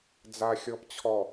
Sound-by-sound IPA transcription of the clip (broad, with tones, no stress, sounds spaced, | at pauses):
d͡z a˨ xʲ ɔ˨ p t͡ɕʰ ɔ˨